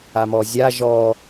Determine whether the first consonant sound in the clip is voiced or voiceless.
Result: voiced